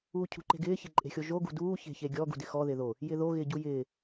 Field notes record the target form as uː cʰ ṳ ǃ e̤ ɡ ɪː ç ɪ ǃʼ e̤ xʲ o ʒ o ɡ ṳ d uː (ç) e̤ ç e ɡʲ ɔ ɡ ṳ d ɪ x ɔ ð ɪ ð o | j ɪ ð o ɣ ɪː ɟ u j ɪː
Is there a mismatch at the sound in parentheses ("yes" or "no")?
no